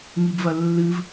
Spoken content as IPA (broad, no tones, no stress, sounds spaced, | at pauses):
ŋ i b v ɐ lː ɨ v